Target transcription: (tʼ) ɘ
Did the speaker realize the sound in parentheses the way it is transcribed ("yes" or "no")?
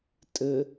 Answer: yes